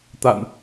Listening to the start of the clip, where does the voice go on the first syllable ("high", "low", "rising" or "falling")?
low